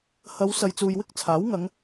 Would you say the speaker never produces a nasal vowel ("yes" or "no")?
yes